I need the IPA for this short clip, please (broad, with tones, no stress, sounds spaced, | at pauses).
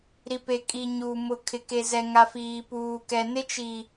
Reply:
ɾ i˨ p e˨ kʼ i˨ ɲ u˨ m ʊ˨ kʰ ɪ˨ k e˨ z ɛ˨ ŋ a˨ f iː˨ p uː˨ k ɛ˨ n ɪ˦ t͡ʃ i˨